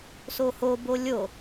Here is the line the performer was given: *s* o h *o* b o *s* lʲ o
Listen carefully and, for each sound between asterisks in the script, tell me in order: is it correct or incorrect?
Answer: correct, correct, incorrect: none

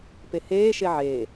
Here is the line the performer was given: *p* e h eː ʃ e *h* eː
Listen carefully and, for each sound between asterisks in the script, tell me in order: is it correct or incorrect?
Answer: correct, incorrect: ʕ

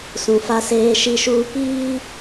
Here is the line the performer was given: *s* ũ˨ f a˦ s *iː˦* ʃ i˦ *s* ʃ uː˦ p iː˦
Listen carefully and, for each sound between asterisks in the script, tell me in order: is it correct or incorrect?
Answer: correct, incorrect: eː˦, incorrect: none

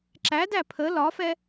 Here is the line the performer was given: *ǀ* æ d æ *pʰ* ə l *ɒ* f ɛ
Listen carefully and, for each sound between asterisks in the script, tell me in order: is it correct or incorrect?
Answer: incorrect: ǁ, correct, correct

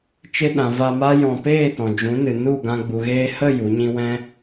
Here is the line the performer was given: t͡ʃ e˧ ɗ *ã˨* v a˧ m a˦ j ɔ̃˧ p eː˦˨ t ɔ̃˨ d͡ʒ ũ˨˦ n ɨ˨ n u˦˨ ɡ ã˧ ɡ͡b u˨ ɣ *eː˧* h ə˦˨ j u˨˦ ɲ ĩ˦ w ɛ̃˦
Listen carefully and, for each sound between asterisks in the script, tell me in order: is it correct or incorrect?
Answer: correct, correct

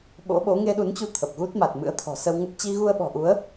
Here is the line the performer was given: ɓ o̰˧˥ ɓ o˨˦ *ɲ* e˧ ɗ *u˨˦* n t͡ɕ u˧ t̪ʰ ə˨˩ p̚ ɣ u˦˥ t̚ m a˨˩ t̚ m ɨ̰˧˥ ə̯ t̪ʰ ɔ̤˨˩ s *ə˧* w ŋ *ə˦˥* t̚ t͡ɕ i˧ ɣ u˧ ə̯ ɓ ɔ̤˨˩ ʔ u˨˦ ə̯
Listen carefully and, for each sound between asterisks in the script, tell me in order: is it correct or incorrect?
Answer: incorrect: ŋ, correct, correct, correct

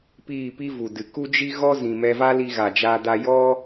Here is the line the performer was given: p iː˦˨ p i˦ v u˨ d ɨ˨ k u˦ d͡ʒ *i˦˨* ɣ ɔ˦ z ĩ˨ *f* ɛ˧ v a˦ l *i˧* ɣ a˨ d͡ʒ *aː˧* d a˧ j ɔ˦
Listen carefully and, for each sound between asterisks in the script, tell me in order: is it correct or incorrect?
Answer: incorrect: i˦, incorrect: m, correct, correct

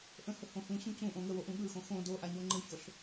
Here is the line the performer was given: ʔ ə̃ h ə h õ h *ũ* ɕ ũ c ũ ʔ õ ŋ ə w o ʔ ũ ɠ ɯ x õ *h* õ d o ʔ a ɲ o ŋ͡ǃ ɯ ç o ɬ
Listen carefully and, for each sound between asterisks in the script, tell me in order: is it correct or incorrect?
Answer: correct, incorrect: x

